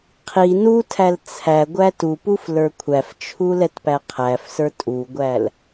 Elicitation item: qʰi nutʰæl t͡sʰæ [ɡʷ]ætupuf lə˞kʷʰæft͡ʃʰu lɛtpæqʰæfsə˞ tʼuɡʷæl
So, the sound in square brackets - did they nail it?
yes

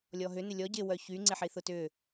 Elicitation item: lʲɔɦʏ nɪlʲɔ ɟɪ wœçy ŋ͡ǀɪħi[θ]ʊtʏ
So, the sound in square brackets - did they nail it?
yes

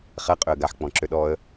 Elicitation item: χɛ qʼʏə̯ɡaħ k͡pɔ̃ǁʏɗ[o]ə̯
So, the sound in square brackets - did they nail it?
no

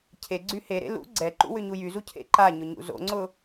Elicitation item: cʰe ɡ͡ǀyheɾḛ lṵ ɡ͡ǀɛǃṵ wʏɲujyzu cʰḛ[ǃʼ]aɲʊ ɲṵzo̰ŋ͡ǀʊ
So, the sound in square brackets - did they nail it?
no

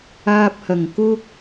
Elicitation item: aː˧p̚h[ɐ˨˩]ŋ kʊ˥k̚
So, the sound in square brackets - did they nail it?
yes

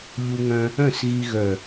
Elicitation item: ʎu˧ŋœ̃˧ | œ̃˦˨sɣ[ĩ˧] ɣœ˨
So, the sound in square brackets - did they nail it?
no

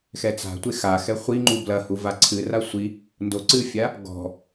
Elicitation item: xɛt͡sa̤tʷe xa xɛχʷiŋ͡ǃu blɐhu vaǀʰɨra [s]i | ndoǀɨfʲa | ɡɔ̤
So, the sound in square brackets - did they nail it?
no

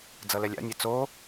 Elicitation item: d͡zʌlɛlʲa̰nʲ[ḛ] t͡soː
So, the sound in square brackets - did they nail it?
no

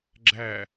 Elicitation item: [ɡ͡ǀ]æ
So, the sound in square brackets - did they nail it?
no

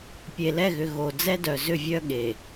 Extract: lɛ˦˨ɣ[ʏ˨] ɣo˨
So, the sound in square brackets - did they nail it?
yes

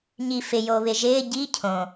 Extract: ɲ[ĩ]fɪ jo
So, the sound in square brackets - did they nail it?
no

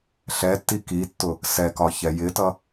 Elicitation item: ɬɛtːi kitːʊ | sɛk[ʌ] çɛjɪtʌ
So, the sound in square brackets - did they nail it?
no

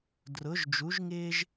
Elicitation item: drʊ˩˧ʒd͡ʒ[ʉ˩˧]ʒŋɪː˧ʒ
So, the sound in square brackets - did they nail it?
no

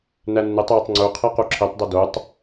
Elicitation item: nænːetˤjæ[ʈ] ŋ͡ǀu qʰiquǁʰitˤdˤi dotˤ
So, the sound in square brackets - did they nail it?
no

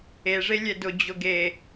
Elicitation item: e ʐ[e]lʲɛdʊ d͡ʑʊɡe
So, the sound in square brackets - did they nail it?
yes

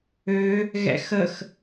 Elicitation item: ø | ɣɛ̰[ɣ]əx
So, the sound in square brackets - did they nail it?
no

